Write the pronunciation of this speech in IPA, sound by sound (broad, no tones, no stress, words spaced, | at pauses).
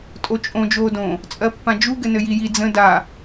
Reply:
tʼot͡ʃʼõ d͡ʒoːdõ | t͡sʼɜpːãd͡ʒu ɡɘnɘjiji d͡zə̃ da